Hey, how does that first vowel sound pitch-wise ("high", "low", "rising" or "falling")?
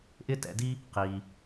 high